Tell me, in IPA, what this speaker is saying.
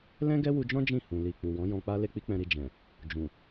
lɛ̃˦ɡɛ˦wu˧d͡ʒɔ̃˦ d͡ʒĩ˦˨hũ˨ li˨ k͡pu˨wɔ̃˨˦jɔ̃˧k͡pa˦ le˦k͡pi˦k͡pɛ̃˧ɾi˧ d͡ʒɛ̃˨ | d͡ʒũ˨

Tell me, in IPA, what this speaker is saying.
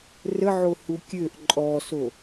rəʕohu kʲøʔ ǃʼɔso

